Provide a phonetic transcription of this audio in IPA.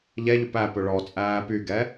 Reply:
ʎ ɛ ʎ ɵ p æ p ɵ ɭ ɔ t͡sʼ æː p y ɡ ɛ

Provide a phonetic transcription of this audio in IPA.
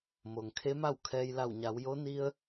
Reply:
m o˩ ŋ kʰ e˧˥ m a˥˨ w kʰ ɛː˧ j l a˧˩ w ɲ a˩˧ w j o˧˥ n i˧ ə̯

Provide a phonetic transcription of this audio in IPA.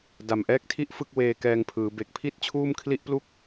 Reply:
d a˨˩ m ʔ ɛː˦˥ k̚ tʰ i˥˩ ʔ f ɯ˥˩ k̚ w eː˧ k ɛː˧ ŋ pʰ ɯː˩˦ b e˨˩ k̚ pʰ i˥˩ t̚ t͡ɕʰ uː˥˩ m kʰ l i˥˩ ʔ p l u˥˩ k̚

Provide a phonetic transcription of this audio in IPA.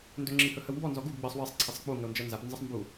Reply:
n d ɵ ŋ͡ǁ i h ɵ h ə w m b ɔ n z ɔ ɡ u ɡ ɡ͡b ɜ sˤ w ɘ sˤ ǀʰ e sˤ k͡p u ŋ ə o̯ n d͡ʒ ɜ n z a p n z ə sˤ m b u

